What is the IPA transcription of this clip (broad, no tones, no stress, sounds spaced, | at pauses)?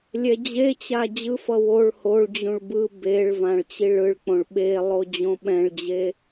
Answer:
lʲ ɛ d͡ʑ e t͡ɕ a d͡ʑ ɯ f ʌ w o ɭ h o ɭ d͡ʑ ũ ɭ b ɯ b e ɭ v ã ɭ t͡ɕ i ɭ ɯ ɭ k͡p õ ɭ ɓ e lˠ o d͡ʑ õ ɓ ɛ̃ ɭ d͡ʑ e